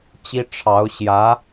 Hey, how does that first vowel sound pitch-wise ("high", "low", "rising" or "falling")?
high